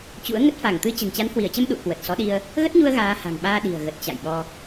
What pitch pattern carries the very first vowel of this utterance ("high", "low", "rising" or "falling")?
rising